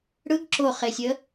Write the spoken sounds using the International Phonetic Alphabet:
ɽ ɯ ɡ ǁ o χ e sʲ ə

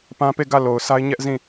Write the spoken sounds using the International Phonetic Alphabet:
p ã˦ p e˦˨ ɡ ä˦˨ l o˨ ʊ̯ s a˦ ɪ̯ ɲ ɛ˦ ʔ z ĩ˦˨

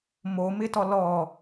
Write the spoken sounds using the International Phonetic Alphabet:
m o m ɪ t ɔ l ɔ

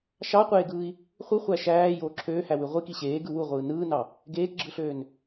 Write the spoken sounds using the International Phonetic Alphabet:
ʃ ɑ qʷ eː ɡ ɯː i̯ | χʷ ɯ χʷ æ ʃ æː j oː ǁʰ øː h æ w y ʁʷ i k i ɕ eː ɡ ɯ w u ʁʷ ɯː n ɯː n ɑ | ɡ eː k ɡ͡ǁ ɯ ɬ øː n

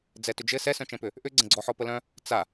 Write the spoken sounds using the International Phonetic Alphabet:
d͡z ɛ t ʏ d͡ʒ ɘ s ɛ s œ̃ t͡ʃ ɛ̃ p ʏ | ʔ ʏ ɡ͡ǀ ə̃ ɡ͡ǀ ɔ ħ ɔ p ə l œ̃ | t͡s a

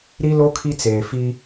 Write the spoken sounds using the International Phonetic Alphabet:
ɾ i˦ l o˦ kʰ i˦ t͡s eː˨ f i˦

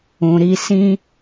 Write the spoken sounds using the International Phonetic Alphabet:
ũ˨ ɾ i˧ s ĩ˦

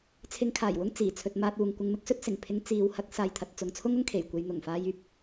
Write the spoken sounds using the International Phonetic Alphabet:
t͡sʰ ɪ˧ ŋ kʰ aː˨˩ j w ʊ˥ ŋ t͡s iː˨˩ t͡sʰ ɵ˧ t̚ m aː˧ t̚ uː˨ ŋ kʷ ɪ˧ ŋ m ɪ˥ k̚ s ɵ˥ t̚ s ɪ˨˩ ŋ pʰ ɪ˧ ŋ t͡s iː˨˧ w h ɐ˨˥ k̚ s aː˨ j t̪ʰ ɐ˨ t̚ t͡s ʊ˨˧ ŋ t͡sʰ ʊ˥ ŋ ʊ˥ ŋ kʰ e˨˩ j kʷ e˧ j n̪ ʊ˨˩ ŋ f aː˧ j yː˥ p̚

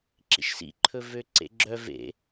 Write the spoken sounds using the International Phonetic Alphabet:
ǁ ḭ ʃ s ḭ ǃʰ ɵ v ø ǀ ḛ ɡ͡ǁ œ v ḛ

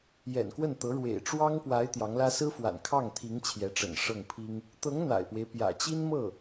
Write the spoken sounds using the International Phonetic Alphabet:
j ɛ̰˨˩ n k w ə˥˩ n t̪ ɤ˧˥ ɻ w ḛ˨˩ ɪ̯ ʈ͡ʂ w ɑ˥ ŋ p w a˧˥ ɪ̯ t̪ j ɑ˧˥ ŋ l ä˥ s ɹ̩˥ f w a̰˨˩ n kʰ ɑ˥˩ ŋ t̪ʰ i˧˥ ŋ t͡ɕʰ j ɛ˧˥ ʈ͡ʂ ə̰˨˩ n ʂ ɤ˥˩ ŋ pʰ i˥ ŋ | t̪ ɤ˧˥ ŋ n̪ a̰˨˩ ɪ̯ p w e˦ ɪ̯ p j ä̰˨˩ t͡ɕ i˥ n m ɤ˥˩

